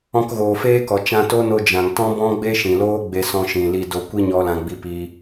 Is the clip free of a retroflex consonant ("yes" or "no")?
yes